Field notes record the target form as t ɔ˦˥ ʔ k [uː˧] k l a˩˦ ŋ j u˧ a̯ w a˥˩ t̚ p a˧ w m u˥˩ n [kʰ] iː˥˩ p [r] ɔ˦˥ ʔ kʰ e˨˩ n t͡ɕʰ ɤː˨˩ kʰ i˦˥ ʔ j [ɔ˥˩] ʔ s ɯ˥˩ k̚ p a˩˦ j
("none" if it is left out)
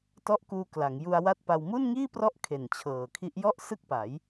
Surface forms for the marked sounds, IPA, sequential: uː˧, ŋ, r, ɔ˥˩

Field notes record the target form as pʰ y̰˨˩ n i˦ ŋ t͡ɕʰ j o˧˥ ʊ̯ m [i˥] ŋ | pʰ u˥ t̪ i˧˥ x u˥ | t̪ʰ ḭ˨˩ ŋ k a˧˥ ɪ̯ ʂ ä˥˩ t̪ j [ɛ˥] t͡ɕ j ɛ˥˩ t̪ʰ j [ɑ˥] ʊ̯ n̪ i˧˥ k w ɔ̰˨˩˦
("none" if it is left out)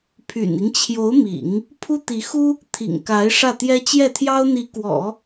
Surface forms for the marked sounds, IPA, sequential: ḭ˨˩˦, ɛ˥, ɑ˥

